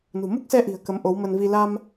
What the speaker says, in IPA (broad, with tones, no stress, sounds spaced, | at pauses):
n ṳ˨˩ m u˦˥ k̚ s ɛ˧ ʔ i̤˨˩ ə̯ k ə˨˦ m ʔ o˨˦ w m ə˧ n v i˧ l a˧ m